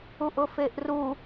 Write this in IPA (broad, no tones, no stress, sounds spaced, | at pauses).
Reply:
u ʔ ʊ f e ʔ r u